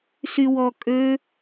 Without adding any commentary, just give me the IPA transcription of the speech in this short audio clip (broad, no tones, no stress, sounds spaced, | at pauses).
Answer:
s y w ɔ kʼ ø